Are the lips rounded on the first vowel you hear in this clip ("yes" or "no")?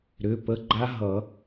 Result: yes